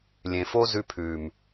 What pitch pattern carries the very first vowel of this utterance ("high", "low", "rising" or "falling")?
low